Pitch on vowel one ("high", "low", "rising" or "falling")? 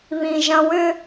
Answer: low